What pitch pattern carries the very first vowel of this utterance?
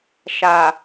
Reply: low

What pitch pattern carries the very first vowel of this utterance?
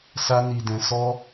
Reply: high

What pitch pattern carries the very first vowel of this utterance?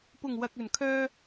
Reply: low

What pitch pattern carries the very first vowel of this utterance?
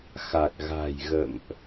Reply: low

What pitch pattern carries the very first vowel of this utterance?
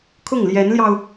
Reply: falling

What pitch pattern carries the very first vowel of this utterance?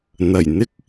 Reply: low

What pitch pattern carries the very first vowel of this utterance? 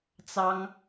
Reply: high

